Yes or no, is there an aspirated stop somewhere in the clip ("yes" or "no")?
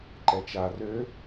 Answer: no